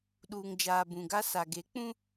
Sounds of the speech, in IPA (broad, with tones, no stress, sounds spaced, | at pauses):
ɗ uː˨ ŋ d͡ʒ aː˨ b ũ˨ ɡ a˦ s a˨ ɡ e˨˦ k͡p ũ˦